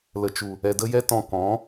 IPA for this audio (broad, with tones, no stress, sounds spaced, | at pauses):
l ə˨ t͡ʃ u˨ | ɛ˨ d ə˧ j ɛ˧ t ɔ̃˨ k ɔ̃˨˦